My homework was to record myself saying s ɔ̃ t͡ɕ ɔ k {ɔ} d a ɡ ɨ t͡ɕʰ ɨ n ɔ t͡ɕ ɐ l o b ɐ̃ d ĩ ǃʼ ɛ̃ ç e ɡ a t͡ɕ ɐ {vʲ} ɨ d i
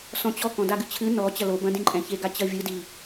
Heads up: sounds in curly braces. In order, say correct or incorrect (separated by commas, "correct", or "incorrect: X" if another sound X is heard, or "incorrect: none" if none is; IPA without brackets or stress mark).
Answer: incorrect: ɔ̃, correct